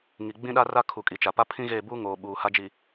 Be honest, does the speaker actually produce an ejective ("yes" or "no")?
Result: yes